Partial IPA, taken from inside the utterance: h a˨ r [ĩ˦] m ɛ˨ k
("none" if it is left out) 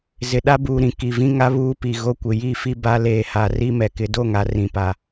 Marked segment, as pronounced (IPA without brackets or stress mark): i˦